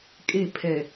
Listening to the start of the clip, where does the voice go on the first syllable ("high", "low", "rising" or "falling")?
falling